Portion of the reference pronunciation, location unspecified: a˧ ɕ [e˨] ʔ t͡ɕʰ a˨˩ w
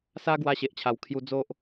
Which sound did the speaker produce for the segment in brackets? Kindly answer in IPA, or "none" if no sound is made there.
e˨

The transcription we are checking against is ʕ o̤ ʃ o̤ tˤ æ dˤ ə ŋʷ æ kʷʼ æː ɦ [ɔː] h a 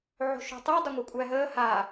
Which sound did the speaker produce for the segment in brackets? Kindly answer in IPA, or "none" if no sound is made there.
əː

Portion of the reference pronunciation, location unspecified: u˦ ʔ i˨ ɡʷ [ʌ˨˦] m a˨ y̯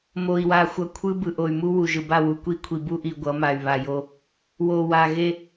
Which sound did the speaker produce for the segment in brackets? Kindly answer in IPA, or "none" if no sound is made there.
ʌ˨˦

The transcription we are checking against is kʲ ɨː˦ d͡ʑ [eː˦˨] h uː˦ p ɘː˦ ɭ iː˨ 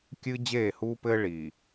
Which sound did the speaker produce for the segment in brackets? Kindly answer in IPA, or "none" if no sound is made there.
eː˦˨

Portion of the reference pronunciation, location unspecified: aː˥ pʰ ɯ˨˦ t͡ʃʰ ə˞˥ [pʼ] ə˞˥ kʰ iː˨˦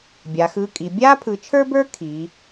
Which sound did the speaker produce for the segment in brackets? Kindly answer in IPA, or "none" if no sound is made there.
b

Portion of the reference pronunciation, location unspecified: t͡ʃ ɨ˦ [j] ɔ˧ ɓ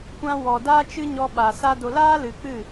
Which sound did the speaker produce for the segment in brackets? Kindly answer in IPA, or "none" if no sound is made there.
ɲ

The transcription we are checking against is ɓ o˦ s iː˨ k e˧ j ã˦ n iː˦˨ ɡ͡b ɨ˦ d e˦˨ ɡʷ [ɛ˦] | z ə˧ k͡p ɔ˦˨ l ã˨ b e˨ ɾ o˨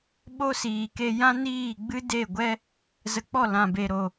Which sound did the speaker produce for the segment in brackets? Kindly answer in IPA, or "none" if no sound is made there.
ɛ˦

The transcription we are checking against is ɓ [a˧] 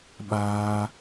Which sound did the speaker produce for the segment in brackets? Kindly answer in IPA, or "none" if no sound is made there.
aː˧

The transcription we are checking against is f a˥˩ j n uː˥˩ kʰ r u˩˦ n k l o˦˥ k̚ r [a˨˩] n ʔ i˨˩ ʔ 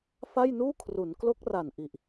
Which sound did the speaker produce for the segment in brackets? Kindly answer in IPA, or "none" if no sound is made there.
a˨˩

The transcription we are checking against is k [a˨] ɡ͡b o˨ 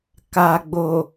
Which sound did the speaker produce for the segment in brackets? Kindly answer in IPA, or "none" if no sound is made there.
a˨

